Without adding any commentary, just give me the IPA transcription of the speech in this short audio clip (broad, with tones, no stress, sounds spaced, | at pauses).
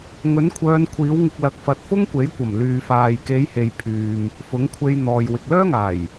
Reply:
ŋ ɵ˨˥ n kʷʰ œː˨˧ n kʷʰ iː˨˥ w ŋ ɪ˧ k̚ l ɐ˧ k̚ f ɐ˧ t̚ f ʊ˥ ŋ kʷ e˨˥ j kʷ ɐ˨˩ m l yː˨ f aː˨ j k e˨˧ j h e˨ j pʰ yː˨ m | f ʊ˨˥ ŋ kʷʰ e˧ j n̪ ɔː˨ j w ɪ˨ k̚ l œː˥ ŋ aː˨˩ j